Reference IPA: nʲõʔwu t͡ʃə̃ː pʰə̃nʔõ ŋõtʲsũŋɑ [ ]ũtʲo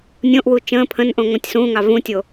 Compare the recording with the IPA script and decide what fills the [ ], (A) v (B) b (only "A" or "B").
A